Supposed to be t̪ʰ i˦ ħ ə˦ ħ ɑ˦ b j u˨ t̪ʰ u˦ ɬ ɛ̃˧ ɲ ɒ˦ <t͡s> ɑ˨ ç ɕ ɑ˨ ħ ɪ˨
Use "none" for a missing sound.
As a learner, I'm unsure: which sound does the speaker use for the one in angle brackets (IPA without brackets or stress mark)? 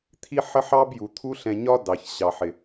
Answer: d